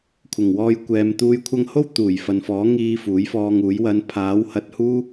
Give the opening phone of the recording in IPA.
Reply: kʷʰ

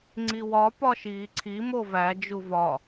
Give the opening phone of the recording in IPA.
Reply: ŋ͡ǀ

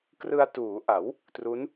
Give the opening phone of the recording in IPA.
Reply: k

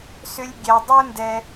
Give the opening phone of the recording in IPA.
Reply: s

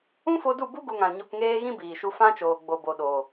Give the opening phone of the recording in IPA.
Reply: ũ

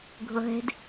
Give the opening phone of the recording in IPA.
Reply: ɡʱ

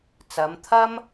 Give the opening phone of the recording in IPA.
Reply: t͡s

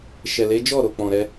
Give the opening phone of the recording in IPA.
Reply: ʃ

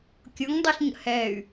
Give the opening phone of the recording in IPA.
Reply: kʲ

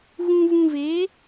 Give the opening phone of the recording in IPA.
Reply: ɣ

